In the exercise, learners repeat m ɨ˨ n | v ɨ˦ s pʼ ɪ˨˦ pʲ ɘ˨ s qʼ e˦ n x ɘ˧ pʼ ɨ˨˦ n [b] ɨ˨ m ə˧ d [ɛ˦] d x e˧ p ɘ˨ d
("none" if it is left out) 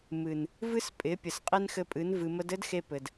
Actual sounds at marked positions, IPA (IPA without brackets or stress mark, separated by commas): v, ɘ˦